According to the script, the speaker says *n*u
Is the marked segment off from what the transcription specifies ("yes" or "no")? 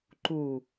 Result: yes